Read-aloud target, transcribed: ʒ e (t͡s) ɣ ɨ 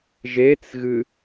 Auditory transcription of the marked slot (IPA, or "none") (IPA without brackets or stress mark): t͡s